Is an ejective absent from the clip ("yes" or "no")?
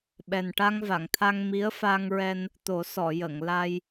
yes